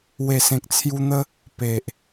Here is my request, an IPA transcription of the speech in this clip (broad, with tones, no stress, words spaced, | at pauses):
we˨˩sẽ˨k̚t͡sʰju˧n̪ə˦ | pe˨ʔ